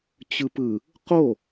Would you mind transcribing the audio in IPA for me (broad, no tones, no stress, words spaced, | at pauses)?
t͡ɕɯpɯ | qo